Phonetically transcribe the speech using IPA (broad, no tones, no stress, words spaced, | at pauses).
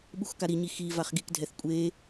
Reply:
ɓuxkaɾiɲi xi vaχɡikdʱɛθ kʷʼe